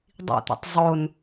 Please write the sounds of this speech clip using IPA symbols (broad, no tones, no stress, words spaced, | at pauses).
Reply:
dˤḭt̪o̰tˤ zˤon